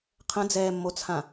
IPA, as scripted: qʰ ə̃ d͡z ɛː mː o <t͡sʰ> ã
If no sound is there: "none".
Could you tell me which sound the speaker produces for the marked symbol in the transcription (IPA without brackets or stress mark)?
t͡sʰ